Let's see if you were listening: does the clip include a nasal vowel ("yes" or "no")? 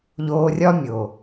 no